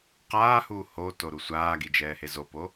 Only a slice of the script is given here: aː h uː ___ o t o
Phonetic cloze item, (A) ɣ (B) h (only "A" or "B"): B